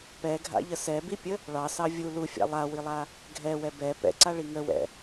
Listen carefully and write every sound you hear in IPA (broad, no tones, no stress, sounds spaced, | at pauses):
p ɛ ɡʱ a̰ ʎ ə s ɛ b i pʲ ə | ɭ ɑ s ɑ vʲ u l u fʲ a̰ lˠ a w i lˠ a | ɡʱ ɛ w ɛ b ɛ p ɛ̰ ǀ a ɭ i ŋ ə w ɛ̰